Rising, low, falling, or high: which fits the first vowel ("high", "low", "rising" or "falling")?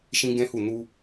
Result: high